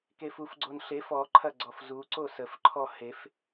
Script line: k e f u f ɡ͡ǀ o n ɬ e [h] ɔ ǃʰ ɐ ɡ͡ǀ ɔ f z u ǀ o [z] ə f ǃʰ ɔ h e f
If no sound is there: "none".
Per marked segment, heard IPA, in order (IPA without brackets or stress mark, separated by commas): f, s